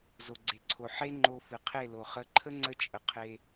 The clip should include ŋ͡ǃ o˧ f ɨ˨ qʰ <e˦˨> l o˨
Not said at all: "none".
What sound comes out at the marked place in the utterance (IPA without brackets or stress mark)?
e˦˨